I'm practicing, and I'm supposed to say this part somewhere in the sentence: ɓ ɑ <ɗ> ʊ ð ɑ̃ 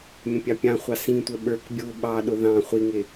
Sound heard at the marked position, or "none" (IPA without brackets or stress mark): ɗ